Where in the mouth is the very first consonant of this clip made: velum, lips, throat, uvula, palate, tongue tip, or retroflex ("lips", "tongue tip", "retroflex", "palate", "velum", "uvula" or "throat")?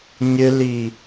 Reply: palate